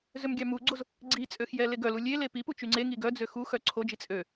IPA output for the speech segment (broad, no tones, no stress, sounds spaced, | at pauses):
z ø m ɡʲ ɑ m u ɡ͡ǀ o z | ɡ͡ǀ i t͡sʼ ø x j ɛ l e ɡ œ l u lʲ e l e p i p u t͡ʃ y ŋ͡ǀ e ŋ i ɡ œ d͡z ø x u x œ ǀʰ o d͡ʒ i t͡sʼ ø